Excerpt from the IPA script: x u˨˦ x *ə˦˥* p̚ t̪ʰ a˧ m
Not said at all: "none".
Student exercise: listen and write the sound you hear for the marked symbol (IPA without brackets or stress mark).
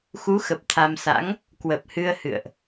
ə˨˩